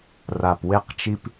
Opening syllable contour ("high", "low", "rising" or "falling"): low